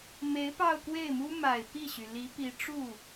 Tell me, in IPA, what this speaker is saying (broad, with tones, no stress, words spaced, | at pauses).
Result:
me˧˥ɪ̯pɑ˥˧ʊ̯kwe˥˩ɪ̯mu˥ ma˨˩ɪ̯pi˥˩ɕy˩ li˧˥pi˧˥ʈ͡ʂu˥˩